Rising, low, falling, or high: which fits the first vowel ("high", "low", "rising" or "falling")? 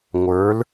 rising